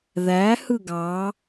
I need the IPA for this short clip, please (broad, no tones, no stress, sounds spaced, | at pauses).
ð æ h ɯ ɡ ɑ